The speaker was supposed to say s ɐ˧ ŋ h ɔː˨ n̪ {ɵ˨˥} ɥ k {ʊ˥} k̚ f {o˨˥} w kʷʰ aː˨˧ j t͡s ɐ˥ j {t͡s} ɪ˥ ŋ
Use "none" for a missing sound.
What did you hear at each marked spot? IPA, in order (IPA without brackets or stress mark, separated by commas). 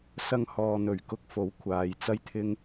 ɵ˨˩, ʊ˧, o˨˥, t̪ʰ